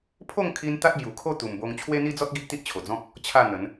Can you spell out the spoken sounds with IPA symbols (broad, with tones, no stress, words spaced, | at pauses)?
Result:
pʰo˥˧ŋkʰi˧n t̪a˦t̚bju˨˩kʰo˥˧ t̪u˨˩mbo˧ŋ t͡ɕʰwe˦n̪i˦d͡zɔ˦t̚ ɡi˦ʔt̪i˦ʔt͡ɕʰo˨˩d͡zɔ̃˦k̚ | t͡ɕʰa˥˧n̪ə˨˦n